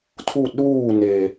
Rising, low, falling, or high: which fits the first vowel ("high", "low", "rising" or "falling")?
falling